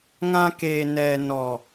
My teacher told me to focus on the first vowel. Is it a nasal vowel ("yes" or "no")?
yes